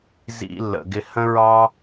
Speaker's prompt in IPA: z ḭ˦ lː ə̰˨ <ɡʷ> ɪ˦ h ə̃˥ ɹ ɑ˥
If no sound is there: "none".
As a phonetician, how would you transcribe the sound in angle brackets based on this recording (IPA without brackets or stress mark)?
ɡ